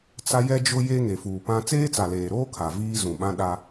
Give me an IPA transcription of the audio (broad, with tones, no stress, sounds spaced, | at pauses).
t͡s a˦ j ɛ˦ d͡ʒ ʊ˦ j e˦ ŋ e˨ f uː˨ p ã˦ t͡s eː˦ t͡s a˨ l eː˨ ɾ oː˦ kʰ a˨ v iː˦ z ũ˨ ɓ ã˦ ɗ a˦